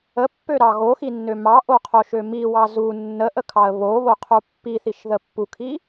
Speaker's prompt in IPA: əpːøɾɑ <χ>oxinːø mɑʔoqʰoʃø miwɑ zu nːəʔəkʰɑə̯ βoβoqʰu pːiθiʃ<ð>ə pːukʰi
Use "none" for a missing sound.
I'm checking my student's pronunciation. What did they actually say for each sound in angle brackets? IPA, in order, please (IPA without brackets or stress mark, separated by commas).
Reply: ɣ, ð